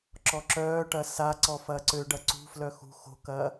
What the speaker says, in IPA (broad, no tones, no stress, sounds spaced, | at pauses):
ǁ ɔ ǁ œː ʈ ɐ s a ǀ ɔ f ɐː ǀ ø ɖ ɐ ǀ ṳ f l œ x ṳ x o̤ k ɐː